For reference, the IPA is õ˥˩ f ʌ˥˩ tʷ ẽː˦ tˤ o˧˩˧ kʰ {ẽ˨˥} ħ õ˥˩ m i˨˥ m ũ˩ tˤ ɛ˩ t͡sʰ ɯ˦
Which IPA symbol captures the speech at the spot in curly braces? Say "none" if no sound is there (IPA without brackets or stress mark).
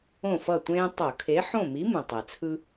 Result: e˨˥